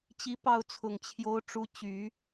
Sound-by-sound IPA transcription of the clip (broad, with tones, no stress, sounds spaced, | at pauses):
t͡ɕ i˧˥ p ɑ˥˩ ʊ̯ t͡sʰ ʊ˨˩ ŋ t͡ɕʰ j o˧˥ ʊ̯ ʈ͡ʂ u˧˥ t͡ɕ y˨˩˦